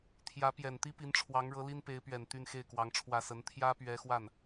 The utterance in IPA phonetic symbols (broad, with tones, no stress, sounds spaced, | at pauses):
t̪ʰ j ä˧˥ p j ɛ˨˩ n t̪ i˥ p i˧˥ n ʈ͡ʂʰ w ɑ˧˥ ŋ ɻ ɤ˧˥ l i˥ n p e˧˥ ɪ̯ p ɥ ɛ˨˩ n t̪ y˥˧ n x e˥˩ ɪ̯ k w ɑ˧˥ ŋ ʈ͡ʂʰ w ä˥˩ s ə˧˥ n t̪ʰ j ä˥ p ɥ ɛ˧˥ x w a˥˩ n